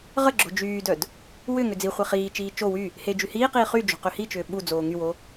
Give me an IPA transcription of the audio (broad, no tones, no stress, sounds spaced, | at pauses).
ʁ ə ɡ͡ǁ o̤ d͡ʒ yː d œ d | w ʏ ŋ ʏ d͡z i χʷ e χ iː t͡ʃ iː t͡ʃ o w y | h e d͡ʒ y h iː q iː χ y d͡ʒ o̤ q ø h i t͡ʃ ʏː ɓ u d͡z oː ŋ y w o